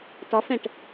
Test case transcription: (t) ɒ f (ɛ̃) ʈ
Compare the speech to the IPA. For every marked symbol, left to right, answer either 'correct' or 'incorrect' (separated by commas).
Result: correct, correct